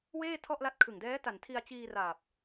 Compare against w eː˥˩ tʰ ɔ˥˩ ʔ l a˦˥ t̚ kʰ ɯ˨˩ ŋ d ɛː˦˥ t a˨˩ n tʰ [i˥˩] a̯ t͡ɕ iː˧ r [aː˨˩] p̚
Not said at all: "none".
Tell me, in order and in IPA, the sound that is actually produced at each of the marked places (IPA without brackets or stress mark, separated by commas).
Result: i˧, aː˨˩